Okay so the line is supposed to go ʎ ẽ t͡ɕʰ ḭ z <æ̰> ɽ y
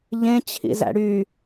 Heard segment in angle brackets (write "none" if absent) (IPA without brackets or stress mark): æ̰